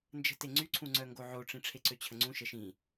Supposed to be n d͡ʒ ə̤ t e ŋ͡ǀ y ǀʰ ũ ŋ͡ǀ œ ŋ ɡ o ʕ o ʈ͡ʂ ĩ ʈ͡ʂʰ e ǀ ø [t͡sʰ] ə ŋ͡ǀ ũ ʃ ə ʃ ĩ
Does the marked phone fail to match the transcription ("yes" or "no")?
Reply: yes